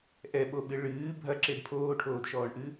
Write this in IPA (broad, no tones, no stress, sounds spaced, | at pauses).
ʔ ɛ ɓ o ɓ ɨ ɭ ɨː bʱ ɐ ǁ e d pʰ oː ʈʰ oː d ʃ ɔː ɳ ʔ ɨ